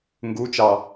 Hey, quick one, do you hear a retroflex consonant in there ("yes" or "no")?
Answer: no